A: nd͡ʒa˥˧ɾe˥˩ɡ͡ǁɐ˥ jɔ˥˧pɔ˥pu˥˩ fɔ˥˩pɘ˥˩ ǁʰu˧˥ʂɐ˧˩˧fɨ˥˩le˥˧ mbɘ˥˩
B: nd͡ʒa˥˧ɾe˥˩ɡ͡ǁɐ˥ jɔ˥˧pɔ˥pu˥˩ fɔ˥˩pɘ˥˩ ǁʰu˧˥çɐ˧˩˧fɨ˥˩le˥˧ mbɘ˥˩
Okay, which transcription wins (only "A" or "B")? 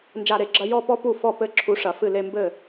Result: A